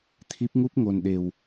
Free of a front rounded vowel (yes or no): yes